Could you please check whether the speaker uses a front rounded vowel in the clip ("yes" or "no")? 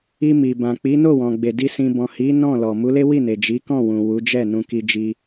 no